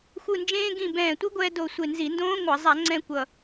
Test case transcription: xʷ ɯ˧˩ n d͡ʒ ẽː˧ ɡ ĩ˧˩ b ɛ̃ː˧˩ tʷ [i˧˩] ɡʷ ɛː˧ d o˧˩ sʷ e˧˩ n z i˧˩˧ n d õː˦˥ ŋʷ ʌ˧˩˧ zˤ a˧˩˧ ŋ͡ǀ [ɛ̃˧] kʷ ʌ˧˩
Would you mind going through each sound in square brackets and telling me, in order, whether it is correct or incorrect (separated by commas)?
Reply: incorrect, correct